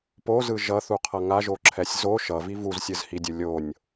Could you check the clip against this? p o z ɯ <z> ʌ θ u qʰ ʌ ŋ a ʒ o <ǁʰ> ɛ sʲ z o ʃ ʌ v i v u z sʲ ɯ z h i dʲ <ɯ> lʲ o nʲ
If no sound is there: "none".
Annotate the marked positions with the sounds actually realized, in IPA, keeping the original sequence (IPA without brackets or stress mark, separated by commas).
ʒ, ǁʰ, ɯ